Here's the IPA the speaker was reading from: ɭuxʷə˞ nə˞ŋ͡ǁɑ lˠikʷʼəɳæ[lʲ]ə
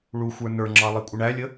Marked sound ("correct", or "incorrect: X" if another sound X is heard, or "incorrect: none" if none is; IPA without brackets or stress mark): correct